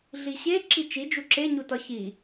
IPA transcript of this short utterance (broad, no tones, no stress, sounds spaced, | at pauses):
ɮ i ɕ e ǁ i t͡ʃ i d͡ʒ u ǁ e ɲ u t ɒ ç i